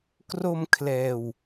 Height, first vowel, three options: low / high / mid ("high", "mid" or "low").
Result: mid